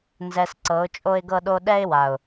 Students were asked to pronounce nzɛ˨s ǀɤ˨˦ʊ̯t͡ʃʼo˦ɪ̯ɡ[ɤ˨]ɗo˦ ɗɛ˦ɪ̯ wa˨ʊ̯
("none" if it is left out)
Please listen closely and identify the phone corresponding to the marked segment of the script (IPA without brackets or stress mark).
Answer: ɤ˦